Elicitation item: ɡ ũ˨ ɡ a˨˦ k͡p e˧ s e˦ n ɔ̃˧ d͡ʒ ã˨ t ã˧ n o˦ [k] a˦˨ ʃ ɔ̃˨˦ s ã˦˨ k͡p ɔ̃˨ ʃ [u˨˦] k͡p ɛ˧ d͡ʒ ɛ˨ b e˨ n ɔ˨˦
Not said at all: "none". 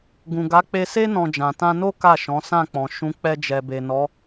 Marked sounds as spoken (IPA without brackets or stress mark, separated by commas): k, ũ˨˦